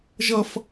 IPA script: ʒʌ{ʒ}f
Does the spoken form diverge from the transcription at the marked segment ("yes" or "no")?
yes